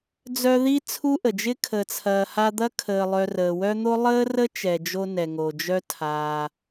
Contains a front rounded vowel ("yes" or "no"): yes